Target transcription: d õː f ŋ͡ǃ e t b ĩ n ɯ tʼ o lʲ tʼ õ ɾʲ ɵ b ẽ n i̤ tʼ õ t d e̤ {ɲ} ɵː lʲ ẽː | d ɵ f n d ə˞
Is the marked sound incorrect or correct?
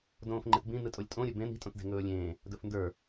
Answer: incorrect